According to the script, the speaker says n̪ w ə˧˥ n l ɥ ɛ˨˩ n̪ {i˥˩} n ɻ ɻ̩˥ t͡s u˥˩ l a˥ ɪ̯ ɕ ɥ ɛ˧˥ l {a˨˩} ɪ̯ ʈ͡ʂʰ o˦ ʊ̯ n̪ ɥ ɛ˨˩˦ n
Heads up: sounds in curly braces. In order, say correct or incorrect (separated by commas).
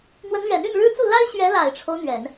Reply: incorrect, correct